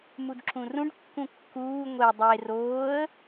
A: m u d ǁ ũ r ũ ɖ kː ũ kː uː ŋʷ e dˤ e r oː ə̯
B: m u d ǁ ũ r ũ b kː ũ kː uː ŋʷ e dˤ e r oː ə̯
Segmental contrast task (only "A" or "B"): A